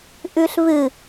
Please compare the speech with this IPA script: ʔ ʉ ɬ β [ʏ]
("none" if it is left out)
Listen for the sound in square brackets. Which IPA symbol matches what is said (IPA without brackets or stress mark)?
ɨ